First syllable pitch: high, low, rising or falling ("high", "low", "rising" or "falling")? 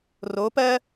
rising